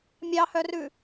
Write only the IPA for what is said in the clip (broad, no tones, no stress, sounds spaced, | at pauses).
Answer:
mʲ ɑ h œ r ʉ